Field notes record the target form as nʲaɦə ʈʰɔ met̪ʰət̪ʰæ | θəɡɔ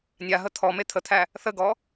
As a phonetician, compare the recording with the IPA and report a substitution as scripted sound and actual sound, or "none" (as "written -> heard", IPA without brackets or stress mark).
ʈʰ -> t̪ʰ